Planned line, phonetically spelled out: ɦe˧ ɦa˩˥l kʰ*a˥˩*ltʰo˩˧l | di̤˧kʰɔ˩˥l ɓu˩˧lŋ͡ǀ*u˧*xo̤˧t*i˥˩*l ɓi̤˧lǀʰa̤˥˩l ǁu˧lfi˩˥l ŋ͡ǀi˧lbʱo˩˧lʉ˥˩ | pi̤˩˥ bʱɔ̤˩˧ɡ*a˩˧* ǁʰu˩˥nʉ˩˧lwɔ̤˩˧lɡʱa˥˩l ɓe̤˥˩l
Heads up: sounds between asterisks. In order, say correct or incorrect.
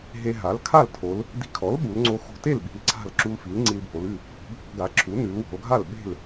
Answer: correct, incorrect: o˧, incorrect: e˥˩, incorrect: a˩˥

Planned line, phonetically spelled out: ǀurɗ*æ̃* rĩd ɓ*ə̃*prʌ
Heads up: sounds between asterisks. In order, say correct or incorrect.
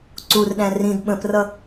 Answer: correct, correct

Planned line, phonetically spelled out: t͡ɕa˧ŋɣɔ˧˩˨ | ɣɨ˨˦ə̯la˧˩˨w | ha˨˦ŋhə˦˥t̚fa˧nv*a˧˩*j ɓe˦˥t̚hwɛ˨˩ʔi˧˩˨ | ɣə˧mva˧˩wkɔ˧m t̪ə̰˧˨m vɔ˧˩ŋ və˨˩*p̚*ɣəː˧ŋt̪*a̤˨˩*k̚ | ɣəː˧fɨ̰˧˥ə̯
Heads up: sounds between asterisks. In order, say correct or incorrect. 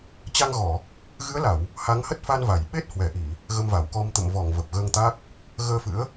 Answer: correct, correct, incorrect: a˦˥

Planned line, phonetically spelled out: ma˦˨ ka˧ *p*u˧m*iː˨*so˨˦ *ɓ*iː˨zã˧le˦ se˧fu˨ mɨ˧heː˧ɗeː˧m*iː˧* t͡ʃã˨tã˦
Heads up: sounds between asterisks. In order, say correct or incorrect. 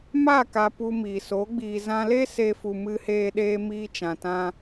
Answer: correct, correct, incorrect: ɡ͡b, correct

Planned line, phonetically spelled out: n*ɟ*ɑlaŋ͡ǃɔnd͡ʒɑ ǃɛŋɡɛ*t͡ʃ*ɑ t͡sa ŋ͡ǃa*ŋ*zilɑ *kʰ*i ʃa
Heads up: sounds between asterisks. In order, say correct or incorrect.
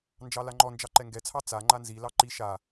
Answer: incorrect: d͡ʒ, incorrect: t͡sʰ, incorrect: n, incorrect: ǃ

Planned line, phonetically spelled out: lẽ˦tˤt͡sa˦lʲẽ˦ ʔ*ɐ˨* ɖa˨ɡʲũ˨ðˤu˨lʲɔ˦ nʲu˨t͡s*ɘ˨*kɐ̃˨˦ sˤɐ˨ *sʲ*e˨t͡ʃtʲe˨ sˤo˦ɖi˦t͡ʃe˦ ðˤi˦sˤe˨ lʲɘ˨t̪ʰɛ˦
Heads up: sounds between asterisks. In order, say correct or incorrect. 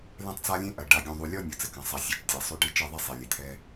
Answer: correct, incorrect: ɘ˦, correct

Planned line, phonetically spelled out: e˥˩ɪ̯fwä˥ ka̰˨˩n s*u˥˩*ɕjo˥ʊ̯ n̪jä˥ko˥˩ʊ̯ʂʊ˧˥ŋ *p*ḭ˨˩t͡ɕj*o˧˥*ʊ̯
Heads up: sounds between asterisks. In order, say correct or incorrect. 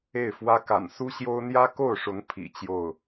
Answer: incorrect: u˥, incorrect: pʰ, incorrect: o˥˩

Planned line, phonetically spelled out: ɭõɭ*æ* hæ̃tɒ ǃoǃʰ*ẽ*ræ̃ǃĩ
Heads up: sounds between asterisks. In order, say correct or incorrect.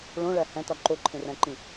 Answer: correct, correct

